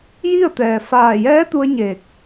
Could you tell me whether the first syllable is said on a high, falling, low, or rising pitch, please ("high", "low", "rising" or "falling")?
falling